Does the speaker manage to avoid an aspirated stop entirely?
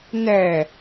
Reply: yes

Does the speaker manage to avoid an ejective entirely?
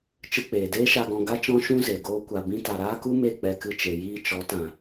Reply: yes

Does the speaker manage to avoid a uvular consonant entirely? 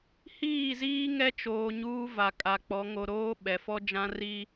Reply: yes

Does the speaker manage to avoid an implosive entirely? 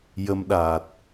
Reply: no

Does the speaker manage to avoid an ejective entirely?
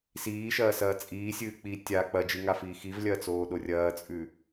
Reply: no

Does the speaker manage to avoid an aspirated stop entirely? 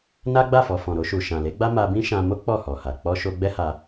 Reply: yes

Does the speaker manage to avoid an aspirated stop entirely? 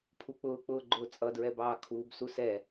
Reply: no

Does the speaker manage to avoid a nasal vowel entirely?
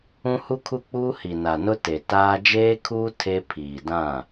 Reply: no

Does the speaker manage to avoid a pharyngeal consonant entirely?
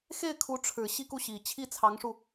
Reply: yes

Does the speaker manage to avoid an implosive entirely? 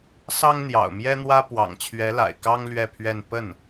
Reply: yes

